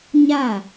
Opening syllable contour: falling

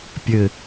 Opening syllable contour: low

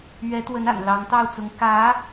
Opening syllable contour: rising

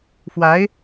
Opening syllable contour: rising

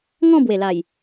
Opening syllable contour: falling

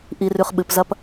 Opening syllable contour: low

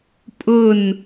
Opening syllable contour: falling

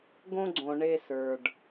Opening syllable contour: high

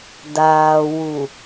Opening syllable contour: low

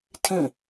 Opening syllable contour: falling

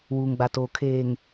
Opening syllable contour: low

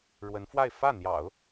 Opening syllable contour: rising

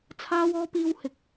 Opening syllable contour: high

